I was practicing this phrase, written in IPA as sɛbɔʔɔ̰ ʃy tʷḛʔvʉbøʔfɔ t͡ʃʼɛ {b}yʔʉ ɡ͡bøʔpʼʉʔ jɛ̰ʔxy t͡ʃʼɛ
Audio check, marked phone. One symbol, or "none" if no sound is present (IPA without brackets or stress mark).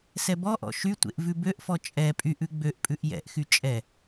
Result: pʼ